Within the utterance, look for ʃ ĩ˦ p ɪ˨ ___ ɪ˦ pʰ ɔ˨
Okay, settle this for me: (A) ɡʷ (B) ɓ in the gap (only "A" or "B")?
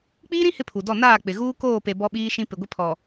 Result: A